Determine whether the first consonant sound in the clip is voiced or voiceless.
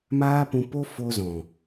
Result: voiced